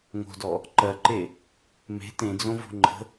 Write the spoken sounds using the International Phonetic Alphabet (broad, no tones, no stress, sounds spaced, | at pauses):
ŋ o̤ d ɔ | ǃ ɜ ǃ e | m e̤ t ẽ d͡z õ v o̤ ŋ͡ǃ ə̤